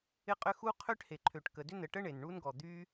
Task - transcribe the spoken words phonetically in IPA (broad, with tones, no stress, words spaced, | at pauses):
ɪ˥ qʼʏ˥ xu˥ qʰø˥ʈhe˩ǃʰø˩ʈkə˩ dʏ˥nə˩ʈə˥ ɳe˩nɳu˥nɡɔ˩ d̪y˥